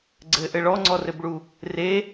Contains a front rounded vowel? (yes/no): no